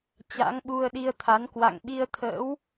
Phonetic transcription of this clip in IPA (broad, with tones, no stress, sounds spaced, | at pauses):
t͡ɕ a̰˧˥ ŋ ɓ u˧ ə̯ ɗ i˧ ə̯ t̪ʰ a˨˦ n k w a̰˧˨ ŋ ɓ i˧ ə̯ t̪ʰ ə̰ː˧˥ w